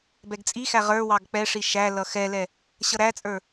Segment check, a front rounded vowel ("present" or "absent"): absent